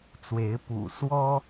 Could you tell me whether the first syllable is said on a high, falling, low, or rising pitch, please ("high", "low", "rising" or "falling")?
rising